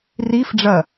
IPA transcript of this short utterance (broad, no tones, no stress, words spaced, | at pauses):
rifɖ͡ʐɐ